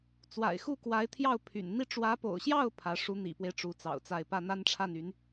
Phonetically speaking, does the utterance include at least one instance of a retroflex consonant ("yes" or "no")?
yes